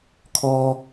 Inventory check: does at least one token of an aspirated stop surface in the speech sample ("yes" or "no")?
yes